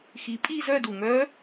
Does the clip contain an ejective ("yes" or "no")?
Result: yes